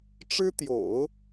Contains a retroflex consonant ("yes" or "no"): yes